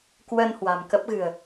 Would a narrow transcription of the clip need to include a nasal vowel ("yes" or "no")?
no